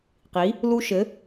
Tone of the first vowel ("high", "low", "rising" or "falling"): rising